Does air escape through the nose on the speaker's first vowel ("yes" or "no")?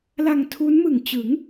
no